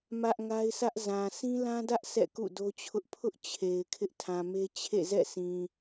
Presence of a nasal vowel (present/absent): present